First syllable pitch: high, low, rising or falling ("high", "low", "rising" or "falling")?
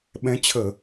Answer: rising